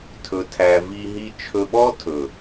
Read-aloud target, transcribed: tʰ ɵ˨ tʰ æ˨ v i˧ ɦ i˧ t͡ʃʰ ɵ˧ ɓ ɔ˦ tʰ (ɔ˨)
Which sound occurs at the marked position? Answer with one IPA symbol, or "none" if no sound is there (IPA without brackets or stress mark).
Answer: ɵ˨